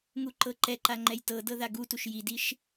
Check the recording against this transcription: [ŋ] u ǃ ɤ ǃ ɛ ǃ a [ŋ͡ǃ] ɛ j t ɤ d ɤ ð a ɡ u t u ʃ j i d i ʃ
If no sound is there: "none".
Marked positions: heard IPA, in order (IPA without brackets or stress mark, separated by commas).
ŋ, ŋ͡ǃ